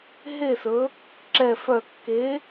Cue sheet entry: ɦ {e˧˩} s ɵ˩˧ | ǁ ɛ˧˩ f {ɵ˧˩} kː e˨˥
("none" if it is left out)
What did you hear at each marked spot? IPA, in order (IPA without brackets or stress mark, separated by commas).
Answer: e˧˩, œ˧˩